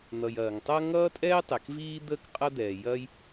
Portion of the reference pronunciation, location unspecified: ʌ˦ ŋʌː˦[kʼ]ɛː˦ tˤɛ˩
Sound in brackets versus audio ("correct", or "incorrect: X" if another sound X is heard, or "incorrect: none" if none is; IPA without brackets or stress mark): incorrect: tʼ